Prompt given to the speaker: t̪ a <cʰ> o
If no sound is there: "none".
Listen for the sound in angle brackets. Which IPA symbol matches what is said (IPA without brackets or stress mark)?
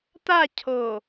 cʰ